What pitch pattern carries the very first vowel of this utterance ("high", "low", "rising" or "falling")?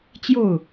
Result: falling